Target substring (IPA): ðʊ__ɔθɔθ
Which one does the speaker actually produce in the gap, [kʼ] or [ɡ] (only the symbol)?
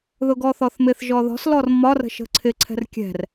ɡ